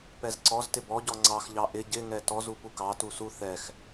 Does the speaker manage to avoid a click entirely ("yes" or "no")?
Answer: no